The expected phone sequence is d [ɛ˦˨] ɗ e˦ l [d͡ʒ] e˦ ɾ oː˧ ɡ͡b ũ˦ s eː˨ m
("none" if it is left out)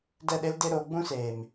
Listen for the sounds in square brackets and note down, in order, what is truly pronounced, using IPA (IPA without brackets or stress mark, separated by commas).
ɛ˦˨, d